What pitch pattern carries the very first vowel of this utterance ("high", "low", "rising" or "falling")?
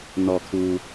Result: low